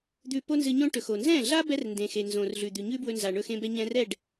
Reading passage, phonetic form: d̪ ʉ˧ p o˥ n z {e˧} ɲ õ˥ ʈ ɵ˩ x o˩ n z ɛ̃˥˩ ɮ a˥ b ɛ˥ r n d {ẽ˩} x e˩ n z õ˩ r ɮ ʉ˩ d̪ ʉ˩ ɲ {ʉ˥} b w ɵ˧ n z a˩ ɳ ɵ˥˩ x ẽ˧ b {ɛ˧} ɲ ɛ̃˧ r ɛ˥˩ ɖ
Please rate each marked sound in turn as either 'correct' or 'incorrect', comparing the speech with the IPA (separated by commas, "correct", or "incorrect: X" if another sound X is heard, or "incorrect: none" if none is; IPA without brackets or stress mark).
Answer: incorrect: ɨ˧, correct, correct, correct